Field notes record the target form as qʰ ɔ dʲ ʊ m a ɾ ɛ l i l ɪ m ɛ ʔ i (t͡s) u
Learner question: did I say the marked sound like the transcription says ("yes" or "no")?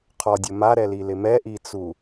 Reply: yes